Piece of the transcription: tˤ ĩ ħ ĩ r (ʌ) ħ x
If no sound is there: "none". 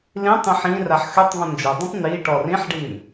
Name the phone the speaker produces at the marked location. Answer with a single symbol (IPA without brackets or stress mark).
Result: a